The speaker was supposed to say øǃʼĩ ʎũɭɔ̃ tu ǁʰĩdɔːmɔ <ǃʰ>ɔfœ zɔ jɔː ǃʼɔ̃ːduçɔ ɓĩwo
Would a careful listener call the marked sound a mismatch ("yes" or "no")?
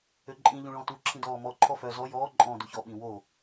no